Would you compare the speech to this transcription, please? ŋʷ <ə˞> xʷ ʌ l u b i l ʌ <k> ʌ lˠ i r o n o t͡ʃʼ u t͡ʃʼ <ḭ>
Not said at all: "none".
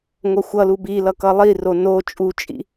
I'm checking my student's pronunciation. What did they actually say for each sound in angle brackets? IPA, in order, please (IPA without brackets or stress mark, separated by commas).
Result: ʌ, k, ḭ